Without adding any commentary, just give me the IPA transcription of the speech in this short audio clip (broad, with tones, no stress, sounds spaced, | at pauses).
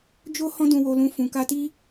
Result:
d͡ʒ o˦ h ɔ̃˦ d ũ˧ w o˧ l ũ˧ f ũ˨ k a˧ t i˦